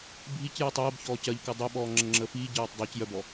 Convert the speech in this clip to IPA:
bʱic jɔtˤɜːb çɔːcɜʎkɜ dˤœɓɔː ŋ͡ǁəŋ͡ǁəːfiː ɟɜːtˤdˤœc jœbɔ

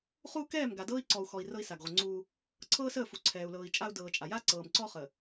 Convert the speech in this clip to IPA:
χu˦kɛː˦˨m ɡa˨dɤː˦i̯ǀɔ˨u̯xɔ˨i̯ rɤ˦i̯sa˨ɡʁʷə˨ŋ͡ǀuː˦ | ǀʰɤː˦səː˦˨fu˨ ǀʰɛː˨u̯lɤː˨i̯ t͡ʃʼa˦u̯dɤː˨t͡ʃʼa˨ ja˦ ǀɤː˨mǀɔ˦ χə˨

